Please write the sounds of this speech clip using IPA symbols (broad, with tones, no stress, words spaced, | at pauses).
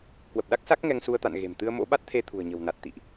kwə˨˩p̚ɗa˦˥k̚sa˦˥k̚ ŋɛ˧ŋsu˧ə̯t̪a̰˧˨n ɣe̤˨˩m t̪ɨ˧ə̯mo̰˧˥ɓa˦˥t̚t̪ʰe˧ t̪ʰṳ˨˩ə̯ɲə̤˨˩wna˨˩t̚ t̪ḭ˧˨ʔ